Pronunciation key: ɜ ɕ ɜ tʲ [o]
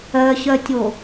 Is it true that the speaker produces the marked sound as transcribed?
yes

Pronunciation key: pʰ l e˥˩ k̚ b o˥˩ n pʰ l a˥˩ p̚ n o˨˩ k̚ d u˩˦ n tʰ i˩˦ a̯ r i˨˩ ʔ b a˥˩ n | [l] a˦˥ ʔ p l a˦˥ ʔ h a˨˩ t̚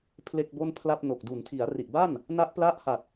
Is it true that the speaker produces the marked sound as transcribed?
no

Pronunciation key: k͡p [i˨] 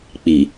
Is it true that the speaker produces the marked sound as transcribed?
yes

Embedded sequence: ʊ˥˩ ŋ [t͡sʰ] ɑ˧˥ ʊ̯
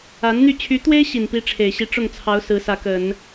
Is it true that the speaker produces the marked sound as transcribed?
yes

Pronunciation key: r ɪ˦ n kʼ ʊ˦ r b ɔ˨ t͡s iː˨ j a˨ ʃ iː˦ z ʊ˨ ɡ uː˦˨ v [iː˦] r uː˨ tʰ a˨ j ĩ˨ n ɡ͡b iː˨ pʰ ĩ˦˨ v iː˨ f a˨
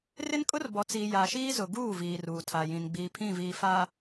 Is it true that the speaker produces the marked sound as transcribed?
no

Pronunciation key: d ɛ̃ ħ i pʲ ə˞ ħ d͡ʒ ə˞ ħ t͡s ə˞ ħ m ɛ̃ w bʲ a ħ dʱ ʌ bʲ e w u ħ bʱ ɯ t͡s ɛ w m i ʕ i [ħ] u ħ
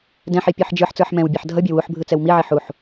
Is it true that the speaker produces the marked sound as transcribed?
yes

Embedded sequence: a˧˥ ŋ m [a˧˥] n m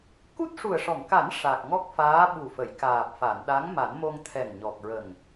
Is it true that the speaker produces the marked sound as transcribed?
no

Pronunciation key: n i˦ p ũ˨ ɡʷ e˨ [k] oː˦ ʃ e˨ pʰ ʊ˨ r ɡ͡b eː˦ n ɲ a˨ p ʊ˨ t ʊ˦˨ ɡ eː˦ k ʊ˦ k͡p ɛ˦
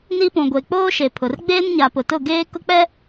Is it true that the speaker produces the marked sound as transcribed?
no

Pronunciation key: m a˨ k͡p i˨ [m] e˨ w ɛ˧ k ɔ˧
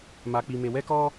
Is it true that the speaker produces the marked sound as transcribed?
yes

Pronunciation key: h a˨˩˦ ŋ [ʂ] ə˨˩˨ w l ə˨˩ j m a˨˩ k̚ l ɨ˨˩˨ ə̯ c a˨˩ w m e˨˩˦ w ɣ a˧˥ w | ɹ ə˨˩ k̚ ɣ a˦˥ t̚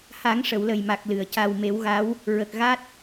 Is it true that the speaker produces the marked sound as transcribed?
yes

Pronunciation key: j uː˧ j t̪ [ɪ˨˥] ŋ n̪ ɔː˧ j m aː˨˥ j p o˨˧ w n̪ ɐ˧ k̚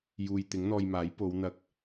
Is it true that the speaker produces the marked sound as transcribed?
yes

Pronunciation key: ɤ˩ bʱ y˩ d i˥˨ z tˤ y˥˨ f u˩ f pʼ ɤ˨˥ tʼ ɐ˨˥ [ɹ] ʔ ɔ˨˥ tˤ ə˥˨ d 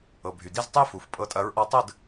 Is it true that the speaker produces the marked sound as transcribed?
yes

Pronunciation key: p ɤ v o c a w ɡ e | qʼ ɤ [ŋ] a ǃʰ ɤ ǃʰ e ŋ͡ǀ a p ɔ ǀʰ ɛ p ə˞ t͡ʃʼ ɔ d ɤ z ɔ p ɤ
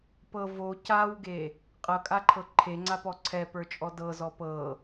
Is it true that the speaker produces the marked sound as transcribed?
no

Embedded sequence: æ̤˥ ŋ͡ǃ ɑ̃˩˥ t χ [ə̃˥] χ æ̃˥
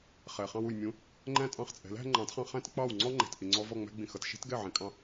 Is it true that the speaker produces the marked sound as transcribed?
no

